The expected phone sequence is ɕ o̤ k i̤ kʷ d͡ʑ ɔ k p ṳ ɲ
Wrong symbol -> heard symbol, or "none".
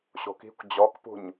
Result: none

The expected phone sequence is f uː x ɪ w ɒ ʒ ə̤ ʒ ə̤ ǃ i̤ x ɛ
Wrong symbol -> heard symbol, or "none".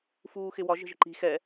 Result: none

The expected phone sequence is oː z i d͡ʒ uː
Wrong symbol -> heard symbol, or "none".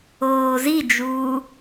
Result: none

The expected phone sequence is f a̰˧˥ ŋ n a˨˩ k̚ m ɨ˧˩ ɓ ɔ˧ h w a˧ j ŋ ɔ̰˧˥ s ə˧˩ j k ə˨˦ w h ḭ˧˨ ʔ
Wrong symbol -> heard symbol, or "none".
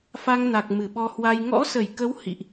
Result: a̰˧˥ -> a˧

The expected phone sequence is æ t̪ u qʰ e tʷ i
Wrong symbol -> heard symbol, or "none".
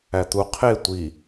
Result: none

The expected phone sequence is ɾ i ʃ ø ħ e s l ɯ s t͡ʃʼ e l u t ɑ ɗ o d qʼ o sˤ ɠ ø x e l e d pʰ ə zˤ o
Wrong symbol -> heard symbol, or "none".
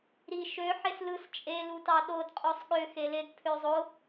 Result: ə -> ø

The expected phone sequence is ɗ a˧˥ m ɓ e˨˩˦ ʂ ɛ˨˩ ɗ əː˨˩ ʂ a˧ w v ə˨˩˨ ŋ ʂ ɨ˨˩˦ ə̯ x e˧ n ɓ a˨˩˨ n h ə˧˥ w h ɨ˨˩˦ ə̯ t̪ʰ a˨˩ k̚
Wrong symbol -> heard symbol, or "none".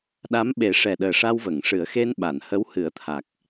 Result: none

